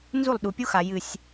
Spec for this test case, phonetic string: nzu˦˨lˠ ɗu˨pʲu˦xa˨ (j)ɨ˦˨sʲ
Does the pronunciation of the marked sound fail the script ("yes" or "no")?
no